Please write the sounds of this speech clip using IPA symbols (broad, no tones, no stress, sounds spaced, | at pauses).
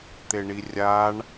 t̪ e ɳ i rʲ a ɳ